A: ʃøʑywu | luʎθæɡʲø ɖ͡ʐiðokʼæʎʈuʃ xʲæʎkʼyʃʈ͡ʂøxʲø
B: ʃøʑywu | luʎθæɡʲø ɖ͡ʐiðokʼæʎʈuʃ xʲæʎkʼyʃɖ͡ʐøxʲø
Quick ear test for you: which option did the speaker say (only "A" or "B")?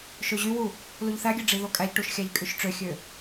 A